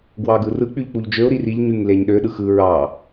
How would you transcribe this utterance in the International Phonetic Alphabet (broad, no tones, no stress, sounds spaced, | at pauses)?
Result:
ɡ w ɑ ɡ ɯ r ɯ k͡p y ʎ k͡p u ʎ d͡ʒ ø ʊ̯ ɾ i r i ʎ ɲ y ŋ l e ɲ ɗ ø ɗ ɯ x ɯ ɹ ɑ